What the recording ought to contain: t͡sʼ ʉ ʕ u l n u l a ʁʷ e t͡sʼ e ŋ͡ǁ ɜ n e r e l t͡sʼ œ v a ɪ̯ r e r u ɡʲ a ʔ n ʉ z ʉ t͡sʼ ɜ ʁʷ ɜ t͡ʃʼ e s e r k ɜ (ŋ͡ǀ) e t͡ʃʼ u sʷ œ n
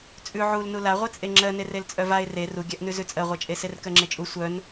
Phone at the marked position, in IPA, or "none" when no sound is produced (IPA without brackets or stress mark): ŋ͡ǁ